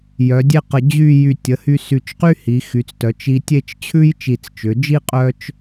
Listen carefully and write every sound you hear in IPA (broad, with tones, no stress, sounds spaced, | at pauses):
j œ˩˧ dʲ e˥˧ q ə˧˩ d͡ʑ y˥˧ j y˧˩ tʲ ə˩˧ h y˧ s y˧˩ t͡ʃ q y˥ h i˩˧ x y˩˧ t͡s t œ˩˧ t͡ʃ i˧ tʲ e˥˧ t͡ʃ t͡ɕʰ ʉ˥ j t͡ʃ i˧˩ t͡s t͡ʃ ʏ˩˧ d͡ʒ i˥ qʼ œ˥ t͡ʃ